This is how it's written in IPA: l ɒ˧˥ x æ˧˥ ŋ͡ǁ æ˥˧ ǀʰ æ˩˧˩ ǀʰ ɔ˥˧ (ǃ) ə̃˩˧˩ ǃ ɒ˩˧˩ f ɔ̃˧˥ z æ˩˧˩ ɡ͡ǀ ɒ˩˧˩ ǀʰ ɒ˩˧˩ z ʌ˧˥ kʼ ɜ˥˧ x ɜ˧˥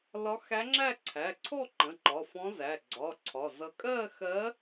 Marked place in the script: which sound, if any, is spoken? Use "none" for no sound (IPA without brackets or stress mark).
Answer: ǃ